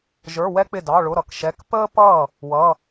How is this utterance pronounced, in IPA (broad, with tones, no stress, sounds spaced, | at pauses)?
ʒ ə˞˧˥˧ w ɛ˥ k͡p ɪ˥˩ d ɑ˧˥˧ ɭ ʊ˧˥˧ ɾ ʌ˥˩ k ʃ ɛ˧˥˧ k p əː˥ p ʌː˥˩ | w ʌ˧˥˧